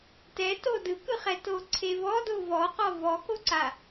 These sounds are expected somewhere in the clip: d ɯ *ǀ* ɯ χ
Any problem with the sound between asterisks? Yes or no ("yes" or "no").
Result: yes